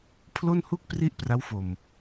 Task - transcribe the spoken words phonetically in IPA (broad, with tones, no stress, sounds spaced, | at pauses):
pʰ l o˥˩ n h u˥˩ k̚ p r i˥˩ ʔ p r a˦˥ w f o˨˩ m